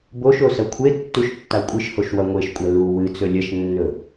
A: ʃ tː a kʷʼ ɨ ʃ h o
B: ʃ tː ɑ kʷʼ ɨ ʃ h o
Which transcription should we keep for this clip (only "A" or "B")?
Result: A